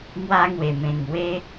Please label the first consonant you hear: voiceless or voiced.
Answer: voiced